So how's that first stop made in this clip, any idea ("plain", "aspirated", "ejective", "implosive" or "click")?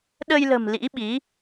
implosive